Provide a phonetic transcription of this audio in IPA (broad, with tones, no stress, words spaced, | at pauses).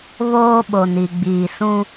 βoː˦ɓo˨ni˨ ɡ͡biː˨sũ˦